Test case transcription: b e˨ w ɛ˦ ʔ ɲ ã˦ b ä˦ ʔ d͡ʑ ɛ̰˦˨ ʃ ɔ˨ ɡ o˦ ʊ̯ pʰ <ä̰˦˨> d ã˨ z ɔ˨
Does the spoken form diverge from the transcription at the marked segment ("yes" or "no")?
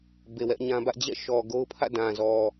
no